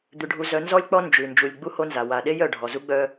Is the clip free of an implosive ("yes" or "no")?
no